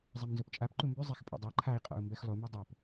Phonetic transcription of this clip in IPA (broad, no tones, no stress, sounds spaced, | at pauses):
zˤ ɛ m n z o p t͡ʃʼ a p ǃ u m b y zˤ ɛ x pʼ o̰ dˤ a ǃʰ a i̯ qʼ ɔ̰ u̯ m b ɛ x lˠ u m ɛ dˤ o p